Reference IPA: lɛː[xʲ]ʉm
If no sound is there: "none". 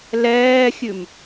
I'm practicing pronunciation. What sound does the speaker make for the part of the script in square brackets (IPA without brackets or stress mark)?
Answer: xʲ